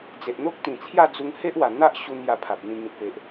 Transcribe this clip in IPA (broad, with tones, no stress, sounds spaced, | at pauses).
d͡z e˨ ʔ n̪ o˦ k̚ t̪ ĩ˨˩ t͡sʰ j a˥˧ d͡z u˧ ŋ h e˦ ʔ w a˨˩ n̪ a˦ ʔ ɕ u˧ n j a˧ pʰ a˨ p̚ n̪ ĩ˧ ŋ ĩ˨ t̚ p e˨ ʔ